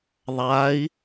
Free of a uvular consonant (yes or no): yes